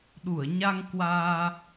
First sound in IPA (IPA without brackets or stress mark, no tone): ɗ